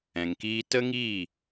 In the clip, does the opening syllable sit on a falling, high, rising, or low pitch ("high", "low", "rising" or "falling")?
low